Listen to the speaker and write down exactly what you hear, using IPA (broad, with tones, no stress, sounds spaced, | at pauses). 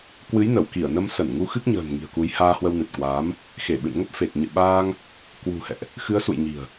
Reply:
k w ɨ˨˦ j n ə˧˩ w k i˧˩ ə̯ n ə˧ m s ə˧˩ n ŋ u˧ x ɨ˦˥ k̚ ɲ ə̤ː˨˩ n ŋ i̤˨˩ ə̯ k u˨˦ j h aː˧ h w ə˧ w n ɨ˨˩ t̚ k w aː˨˦ m | x e˧˩ ɓ ɨ̰˧˨ n ŋ ə˦˥ p̚ f e˨˩ k̚ ɲ ɨ̰˧˨ ɓ aː˧ ŋ | k w ṳ˨˩ h ɛ̰˧˨ ʔ | x ɨ˨˦ ə̯ s ṵ˧˨ j ɲ i̤˨˩ ə̯